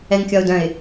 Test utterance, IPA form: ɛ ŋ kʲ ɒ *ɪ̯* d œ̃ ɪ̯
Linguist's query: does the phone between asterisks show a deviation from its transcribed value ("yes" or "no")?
yes